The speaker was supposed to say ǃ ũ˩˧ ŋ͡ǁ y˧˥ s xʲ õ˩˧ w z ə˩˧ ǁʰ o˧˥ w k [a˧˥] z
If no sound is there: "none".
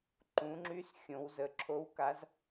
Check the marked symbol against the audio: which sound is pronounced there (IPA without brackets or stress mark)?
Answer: a˧˥